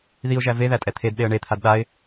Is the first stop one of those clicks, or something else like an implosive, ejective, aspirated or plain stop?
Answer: ejective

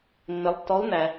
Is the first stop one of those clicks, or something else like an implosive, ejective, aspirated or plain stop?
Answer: plain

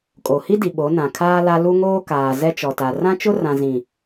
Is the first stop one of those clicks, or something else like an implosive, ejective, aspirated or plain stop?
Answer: ejective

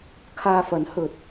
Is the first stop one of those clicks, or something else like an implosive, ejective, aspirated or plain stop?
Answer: aspirated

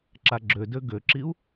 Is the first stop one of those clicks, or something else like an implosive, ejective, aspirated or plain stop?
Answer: click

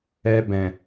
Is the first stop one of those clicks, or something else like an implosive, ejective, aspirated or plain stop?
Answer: plain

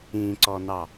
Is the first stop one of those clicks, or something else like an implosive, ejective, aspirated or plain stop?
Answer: click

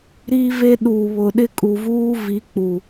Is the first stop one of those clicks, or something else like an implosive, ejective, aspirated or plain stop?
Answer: implosive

